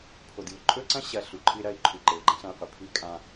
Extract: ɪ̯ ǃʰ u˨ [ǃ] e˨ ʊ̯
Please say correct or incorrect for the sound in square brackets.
correct